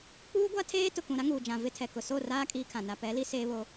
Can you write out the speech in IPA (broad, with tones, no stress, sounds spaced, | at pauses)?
k͡p uː˦ ɡʷ a˦ tʰ eː˦ t ʊ˨ k ũ˨ ɾ a˦ ŋ uː˨ d͡ʒ ã˨ v ɪ˦ tʰ ɛ˨ k ʊ˨ s o˦˨ r aː˦ kʼ iː˦ kʰ ã˨ n a˨ p ɛ˨˦ l i˦ s e˦ β o˦